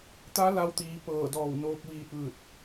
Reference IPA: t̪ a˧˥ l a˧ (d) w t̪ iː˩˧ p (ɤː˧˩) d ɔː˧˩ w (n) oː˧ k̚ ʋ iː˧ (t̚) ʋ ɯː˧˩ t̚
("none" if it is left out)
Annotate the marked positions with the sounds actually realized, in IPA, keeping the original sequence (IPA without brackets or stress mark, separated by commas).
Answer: none, ɤː˧˩, n, t̚